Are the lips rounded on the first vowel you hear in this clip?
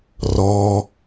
yes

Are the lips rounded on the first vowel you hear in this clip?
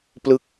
no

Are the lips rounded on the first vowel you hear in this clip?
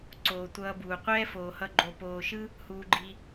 yes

